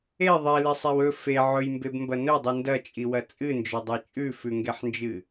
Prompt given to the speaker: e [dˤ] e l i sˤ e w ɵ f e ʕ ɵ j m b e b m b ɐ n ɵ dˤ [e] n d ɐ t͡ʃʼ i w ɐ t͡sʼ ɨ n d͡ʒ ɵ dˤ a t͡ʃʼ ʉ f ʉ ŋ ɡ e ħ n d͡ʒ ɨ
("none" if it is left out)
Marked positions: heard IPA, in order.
ðˤ, ɨ

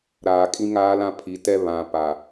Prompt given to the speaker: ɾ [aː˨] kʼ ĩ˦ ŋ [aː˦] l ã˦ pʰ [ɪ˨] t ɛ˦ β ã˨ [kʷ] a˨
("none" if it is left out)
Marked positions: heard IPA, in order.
aː˨, aː˦, i˨, p

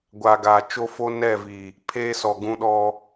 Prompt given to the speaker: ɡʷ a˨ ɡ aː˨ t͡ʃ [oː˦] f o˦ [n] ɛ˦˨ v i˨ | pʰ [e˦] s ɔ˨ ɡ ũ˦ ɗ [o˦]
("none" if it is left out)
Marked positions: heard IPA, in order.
o˦, n, eː˦, ɔ˦

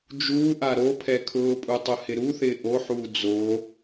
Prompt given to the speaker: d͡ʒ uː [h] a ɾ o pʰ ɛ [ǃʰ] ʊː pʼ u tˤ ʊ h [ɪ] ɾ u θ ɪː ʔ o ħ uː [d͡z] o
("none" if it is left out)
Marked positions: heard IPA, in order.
ʔ, kʰ, ɪ, d͡z

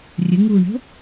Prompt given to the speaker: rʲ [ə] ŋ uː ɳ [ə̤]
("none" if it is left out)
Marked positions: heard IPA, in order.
ə, ə̤

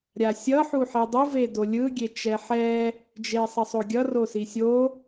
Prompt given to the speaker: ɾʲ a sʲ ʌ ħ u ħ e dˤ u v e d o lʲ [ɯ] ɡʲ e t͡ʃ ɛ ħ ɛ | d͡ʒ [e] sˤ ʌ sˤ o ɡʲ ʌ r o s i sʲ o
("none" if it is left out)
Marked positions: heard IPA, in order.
ɯ, e

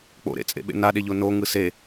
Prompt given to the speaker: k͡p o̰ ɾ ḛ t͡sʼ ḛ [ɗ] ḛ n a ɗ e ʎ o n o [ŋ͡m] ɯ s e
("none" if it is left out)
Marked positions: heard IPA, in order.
ɓ, ŋ

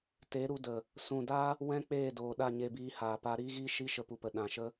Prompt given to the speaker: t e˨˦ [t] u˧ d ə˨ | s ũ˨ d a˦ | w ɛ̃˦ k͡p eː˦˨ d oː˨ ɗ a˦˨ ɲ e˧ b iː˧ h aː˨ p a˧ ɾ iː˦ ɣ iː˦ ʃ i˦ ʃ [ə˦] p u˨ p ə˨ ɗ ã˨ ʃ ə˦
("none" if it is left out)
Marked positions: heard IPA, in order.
ɾ, ə˧

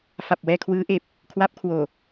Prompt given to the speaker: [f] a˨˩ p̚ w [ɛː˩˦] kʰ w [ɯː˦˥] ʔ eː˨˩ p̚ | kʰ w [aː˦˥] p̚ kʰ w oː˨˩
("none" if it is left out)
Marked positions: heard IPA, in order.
f, ɛː˧, ɯː˦˥, a˦˥

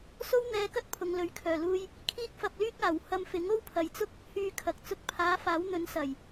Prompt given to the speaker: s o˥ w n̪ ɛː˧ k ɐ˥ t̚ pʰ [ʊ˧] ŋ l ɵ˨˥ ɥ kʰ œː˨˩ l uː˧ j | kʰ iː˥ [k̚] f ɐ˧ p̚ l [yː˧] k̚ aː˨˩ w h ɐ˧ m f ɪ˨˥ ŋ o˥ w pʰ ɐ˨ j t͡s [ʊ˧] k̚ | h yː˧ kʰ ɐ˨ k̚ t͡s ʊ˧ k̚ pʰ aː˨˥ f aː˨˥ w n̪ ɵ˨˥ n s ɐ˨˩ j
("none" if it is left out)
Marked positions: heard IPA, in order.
ʊ˨, k̚, yː˥, ʊ˥

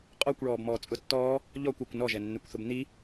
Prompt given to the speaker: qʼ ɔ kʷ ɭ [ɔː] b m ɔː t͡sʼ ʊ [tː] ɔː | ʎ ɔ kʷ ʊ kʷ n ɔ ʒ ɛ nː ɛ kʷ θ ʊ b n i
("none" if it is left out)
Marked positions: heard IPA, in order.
ɔː, tː

